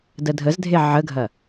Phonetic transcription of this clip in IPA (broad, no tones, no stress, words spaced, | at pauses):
dədʱəzdʱe ʕəɡʱɐ